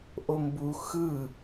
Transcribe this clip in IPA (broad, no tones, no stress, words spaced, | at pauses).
ʔombu xɯ